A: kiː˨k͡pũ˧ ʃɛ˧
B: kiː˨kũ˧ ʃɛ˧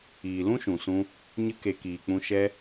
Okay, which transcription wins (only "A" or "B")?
A